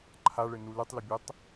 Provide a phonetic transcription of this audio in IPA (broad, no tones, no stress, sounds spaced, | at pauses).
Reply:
ǃʰ a ɭ ɘ n u l ɨ tˤ l ɘ bʲ ɛ tˤ